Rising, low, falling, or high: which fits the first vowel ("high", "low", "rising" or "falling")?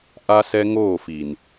high